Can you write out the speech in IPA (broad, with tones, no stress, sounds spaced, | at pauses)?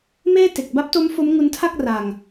m eː˥˩ t e˨˩ k̚ b a˦˥ p̚ t o˦˥ m f o˦˥ m ŋ u˦˥ n tʰ a˥˩ k̚ r a˨˩ ŋ